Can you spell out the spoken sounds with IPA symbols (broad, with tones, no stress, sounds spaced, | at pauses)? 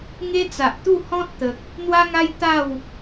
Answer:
ŋ e˦ t͡s a˨ ʔ t̪ u˥˧ h ɔ̃˦ t̚ t̪ ə˨ k̚ | n̪ w a˦ ŋ a˦ j t̪ a˥˧ w